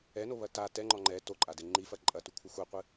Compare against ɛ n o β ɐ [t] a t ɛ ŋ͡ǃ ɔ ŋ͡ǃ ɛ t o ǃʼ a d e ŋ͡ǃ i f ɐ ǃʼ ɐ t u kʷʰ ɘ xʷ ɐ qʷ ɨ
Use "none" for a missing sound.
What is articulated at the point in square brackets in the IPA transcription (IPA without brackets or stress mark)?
t